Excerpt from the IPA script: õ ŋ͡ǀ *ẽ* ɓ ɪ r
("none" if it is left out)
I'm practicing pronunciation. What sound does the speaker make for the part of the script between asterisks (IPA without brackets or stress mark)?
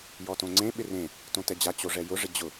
ẽ